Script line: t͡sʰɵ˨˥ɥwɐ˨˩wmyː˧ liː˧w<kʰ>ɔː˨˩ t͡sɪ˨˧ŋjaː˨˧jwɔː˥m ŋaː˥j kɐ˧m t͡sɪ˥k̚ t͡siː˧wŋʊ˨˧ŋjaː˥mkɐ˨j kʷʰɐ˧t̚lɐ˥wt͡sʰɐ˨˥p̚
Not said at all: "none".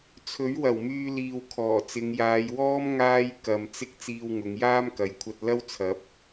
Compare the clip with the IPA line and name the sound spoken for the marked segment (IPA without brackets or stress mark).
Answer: kʰ